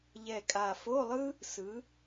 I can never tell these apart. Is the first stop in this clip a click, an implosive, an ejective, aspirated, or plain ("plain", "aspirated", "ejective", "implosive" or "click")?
ejective